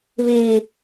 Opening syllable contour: low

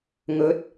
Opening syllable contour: rising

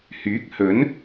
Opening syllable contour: rising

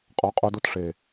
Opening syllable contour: rising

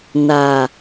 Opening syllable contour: low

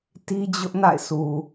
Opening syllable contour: high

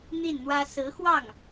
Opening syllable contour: falling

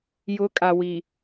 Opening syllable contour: rising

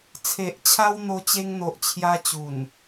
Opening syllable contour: low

